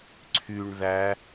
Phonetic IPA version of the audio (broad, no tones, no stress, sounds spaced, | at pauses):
ǀʰ y ɳ ð æ